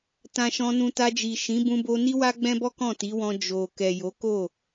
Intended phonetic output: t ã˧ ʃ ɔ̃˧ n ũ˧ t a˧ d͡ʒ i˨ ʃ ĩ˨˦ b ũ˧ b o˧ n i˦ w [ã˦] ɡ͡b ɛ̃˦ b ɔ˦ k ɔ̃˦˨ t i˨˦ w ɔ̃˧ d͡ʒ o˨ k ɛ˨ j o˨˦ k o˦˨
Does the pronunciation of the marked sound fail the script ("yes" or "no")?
yes